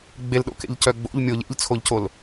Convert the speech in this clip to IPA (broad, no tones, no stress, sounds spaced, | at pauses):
ɡ͡b e l ɗ o̰ k ḛ ʎ c œ ɡ͡b o̰ ʎ mʲ o ʎ ḛ ʎ t͡sʰ o ʎ c o l